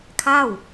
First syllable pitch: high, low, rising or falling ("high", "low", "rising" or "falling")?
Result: falling